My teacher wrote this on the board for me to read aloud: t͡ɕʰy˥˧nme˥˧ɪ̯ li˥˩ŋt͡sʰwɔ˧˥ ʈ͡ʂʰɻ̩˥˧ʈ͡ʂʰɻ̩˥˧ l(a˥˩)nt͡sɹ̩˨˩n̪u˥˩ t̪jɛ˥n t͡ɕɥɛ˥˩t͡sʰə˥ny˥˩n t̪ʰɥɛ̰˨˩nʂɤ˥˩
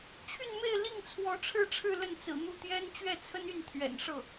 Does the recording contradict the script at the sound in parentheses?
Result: yes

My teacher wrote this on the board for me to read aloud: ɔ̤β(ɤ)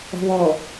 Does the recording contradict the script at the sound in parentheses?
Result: yes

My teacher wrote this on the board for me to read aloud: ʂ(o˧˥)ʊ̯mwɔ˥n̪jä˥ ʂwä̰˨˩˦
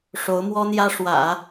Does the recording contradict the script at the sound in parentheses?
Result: no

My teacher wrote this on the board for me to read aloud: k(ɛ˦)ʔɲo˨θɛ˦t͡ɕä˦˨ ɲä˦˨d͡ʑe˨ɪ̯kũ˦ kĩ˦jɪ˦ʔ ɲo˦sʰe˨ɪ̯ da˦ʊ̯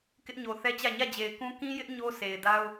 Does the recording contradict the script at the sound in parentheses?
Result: yes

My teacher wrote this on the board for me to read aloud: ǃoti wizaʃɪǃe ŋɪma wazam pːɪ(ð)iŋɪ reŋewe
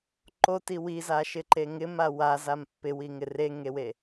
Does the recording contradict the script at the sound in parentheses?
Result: yes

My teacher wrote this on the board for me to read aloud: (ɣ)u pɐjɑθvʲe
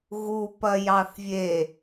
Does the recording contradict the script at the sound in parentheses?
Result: no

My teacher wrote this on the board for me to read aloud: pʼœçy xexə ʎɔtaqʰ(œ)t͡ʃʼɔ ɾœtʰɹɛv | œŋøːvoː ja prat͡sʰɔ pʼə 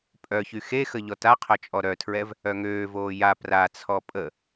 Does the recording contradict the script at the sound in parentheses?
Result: no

